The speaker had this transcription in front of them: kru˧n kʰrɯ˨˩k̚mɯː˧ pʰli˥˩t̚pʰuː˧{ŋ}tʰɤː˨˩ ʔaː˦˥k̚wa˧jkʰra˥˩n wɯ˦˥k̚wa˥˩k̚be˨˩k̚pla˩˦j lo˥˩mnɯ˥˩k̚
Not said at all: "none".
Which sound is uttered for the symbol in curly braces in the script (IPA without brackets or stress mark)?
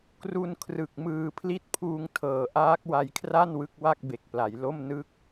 ŋ